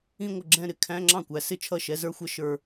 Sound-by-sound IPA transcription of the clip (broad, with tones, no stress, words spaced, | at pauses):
ĩ˥˧ŋʷə˥˩ɡ͡ǁɛ̃˥˧ɾɪ˧˥˧ kʰæ̃˧˥˧ŋ͡ǁɑ̃˥˩kʷæ˨˦ sɪ˥˧t͡ʃʰʌ˥˩ʃɛ˧˥˧ zə˞˥xʷʌ˥˧ ʃə˞˥˧